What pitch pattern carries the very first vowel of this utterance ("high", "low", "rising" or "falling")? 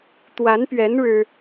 rising